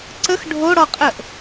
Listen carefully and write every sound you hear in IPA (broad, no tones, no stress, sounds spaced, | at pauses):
ǀ ə x ɖʱ o ɽ ɔ qʼ ə ʔ